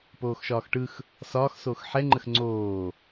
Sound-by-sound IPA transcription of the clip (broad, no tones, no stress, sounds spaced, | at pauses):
p oː x ʃ ɒː x ʈ ɯ x | s ɒː x s oː x ħ ɛ ŋ͡ǃ ə x ŋ͡ǀ oː